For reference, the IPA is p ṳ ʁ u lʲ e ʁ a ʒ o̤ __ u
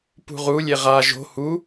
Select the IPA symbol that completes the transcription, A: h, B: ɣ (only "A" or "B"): A